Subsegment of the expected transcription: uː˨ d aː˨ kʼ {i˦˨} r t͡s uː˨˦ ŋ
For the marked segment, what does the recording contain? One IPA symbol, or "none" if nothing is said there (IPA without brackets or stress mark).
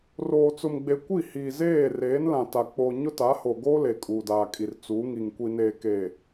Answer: i˨